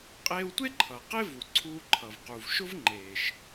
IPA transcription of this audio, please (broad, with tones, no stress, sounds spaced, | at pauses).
qʼ eː˧ w tʷ e˥ ǃʰ ʌː˩ q e˥ v u˩ ǀʰ uː˧ ǃʰ ʌ˩ v q u˩ v ʃ ʊ˥ v ŋ͡ǃ eː˩ ʃ